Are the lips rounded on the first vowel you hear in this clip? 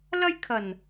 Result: no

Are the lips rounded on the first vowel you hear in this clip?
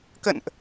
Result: no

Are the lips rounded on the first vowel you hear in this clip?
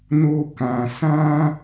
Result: yes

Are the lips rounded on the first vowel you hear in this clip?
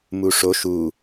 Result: yes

